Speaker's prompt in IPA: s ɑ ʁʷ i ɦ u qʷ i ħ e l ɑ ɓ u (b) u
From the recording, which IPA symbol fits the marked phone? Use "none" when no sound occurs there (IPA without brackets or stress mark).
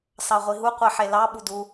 d